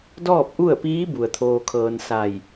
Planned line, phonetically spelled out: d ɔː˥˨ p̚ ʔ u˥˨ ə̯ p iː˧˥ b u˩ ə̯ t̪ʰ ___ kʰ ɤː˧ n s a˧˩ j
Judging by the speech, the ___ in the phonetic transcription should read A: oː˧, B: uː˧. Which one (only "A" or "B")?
A